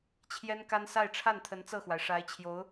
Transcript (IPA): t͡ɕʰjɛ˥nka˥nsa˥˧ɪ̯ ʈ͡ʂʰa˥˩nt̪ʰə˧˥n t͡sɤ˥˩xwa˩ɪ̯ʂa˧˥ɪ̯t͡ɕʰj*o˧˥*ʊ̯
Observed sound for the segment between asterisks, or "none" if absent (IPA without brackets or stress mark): o˧˥